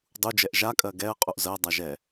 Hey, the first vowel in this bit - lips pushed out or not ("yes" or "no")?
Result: yes